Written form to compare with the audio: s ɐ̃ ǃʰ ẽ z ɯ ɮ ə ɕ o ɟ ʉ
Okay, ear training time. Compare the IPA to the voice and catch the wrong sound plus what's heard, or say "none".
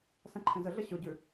ɯ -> ə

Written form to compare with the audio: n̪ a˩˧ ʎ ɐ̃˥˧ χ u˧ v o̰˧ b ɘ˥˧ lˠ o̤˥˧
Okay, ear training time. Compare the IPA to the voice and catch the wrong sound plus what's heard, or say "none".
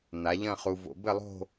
none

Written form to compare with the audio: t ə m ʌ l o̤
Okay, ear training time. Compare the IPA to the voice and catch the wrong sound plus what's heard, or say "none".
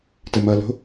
none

